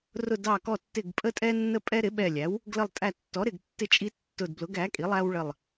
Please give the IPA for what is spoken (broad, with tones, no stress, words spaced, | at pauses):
rʊ˧˩dɑ˧˩kɔ˧˩tːɪ˧˩ɡ pʼə˦tʼɛ˦nːə˦ pʼɛ˦ɾɪ˩˥ɓɛ˧˩lʲæ˩˥w | ɡlə˧˩lˠtʼæ˧˩tːɔ˩˥ɾɪ˧˩ɡ tːɪ˦t͡ʃʼi˦tːʊ˧˩dblʊ˩˥ɡ æ˩˥kʼi˩˥ lˠæ˦wɭə˧˩lˠ